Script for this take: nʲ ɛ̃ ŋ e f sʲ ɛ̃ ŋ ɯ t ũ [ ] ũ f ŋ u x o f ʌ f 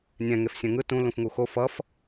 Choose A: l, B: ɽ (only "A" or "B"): A